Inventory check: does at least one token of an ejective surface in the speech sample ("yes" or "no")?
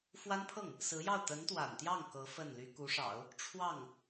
no